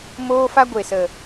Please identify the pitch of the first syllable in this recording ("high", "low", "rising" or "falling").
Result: high